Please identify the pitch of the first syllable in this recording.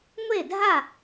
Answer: falling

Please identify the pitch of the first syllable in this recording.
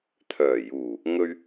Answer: low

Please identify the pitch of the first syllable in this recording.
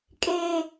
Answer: high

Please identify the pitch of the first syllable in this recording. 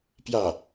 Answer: falling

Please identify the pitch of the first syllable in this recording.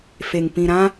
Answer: low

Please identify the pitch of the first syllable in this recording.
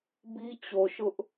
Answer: high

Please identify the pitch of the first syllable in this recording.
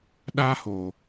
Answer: high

